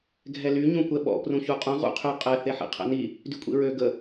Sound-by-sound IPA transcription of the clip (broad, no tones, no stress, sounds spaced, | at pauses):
ɡʱ ɛ l y ɲ ũ kʷ ɛ ɓ ɔ̰ p r ũ ç u qʼ ũ ʁ ṵ qʰ y qʼ ɛ θ e ħ ḭ qʰ ɛ̰ n i | d y kʷʼ ḭ ɹ ø ɡ ə